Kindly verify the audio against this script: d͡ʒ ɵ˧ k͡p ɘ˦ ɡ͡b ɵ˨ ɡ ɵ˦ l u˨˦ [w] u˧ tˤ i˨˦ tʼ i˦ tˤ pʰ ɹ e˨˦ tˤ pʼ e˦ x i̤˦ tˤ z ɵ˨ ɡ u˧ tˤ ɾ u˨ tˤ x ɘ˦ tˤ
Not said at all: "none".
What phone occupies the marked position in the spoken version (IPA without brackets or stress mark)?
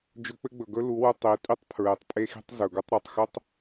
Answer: w